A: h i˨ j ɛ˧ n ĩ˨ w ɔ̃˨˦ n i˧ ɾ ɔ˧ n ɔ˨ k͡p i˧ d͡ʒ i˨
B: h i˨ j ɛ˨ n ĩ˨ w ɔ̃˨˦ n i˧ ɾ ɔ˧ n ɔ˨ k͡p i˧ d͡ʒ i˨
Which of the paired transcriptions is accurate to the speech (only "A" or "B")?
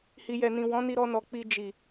B